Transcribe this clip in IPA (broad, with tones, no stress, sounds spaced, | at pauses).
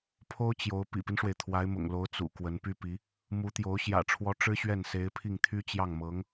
pʰ o˥ ʊ̯ t͡ɕ j o˧˥ ʊ̯ p ḭ˨˩ p i˦ n ʂ w e˩ ɪ̯ t̪ʰ w a˧˥ ɪ̯ m ʊ̰˨˩ ŋ l o˧˥ ʊ̯ t͡s ṵ˨˩ k w ə˧˥ n p y˥ p i˧˥ | m u˧˥ t̪ j o˧˥ ʊ̯ ɕ j ä̰˨˩ ʈ͡ʂʰ w ɔ˧˥ ʈ͡ʂ ɻ̩˥ ɕ ɥ ɛ˥˩ n s e˧˥ ɪ̯ pʰ i˥˩ ŋ t̪ʰ y˥ t͡ɕ j ɑ˥˩ ŋ m ɤ˧˥ ŋ